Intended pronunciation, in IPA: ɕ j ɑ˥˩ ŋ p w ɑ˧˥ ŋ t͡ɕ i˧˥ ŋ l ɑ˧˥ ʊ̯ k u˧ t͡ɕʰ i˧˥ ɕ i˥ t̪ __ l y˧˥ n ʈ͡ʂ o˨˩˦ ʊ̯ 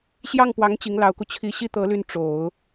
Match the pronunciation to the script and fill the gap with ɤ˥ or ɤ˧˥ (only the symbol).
ɤ˧˥